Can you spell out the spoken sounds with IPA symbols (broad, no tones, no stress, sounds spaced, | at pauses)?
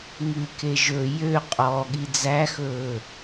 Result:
ŋ ʉ k e ʒ ɵ j ø qʼ ɔ ɠ i d͡z æ x ɵː